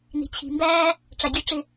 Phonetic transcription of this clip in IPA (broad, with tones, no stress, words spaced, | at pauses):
ni̤˨t͡ɕʰi̤˨mbæː˦ | ʈ͡ʂa˨ɡʲø˧ʈ͡ʂɪ˧